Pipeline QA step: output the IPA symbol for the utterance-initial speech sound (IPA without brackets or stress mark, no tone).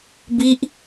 b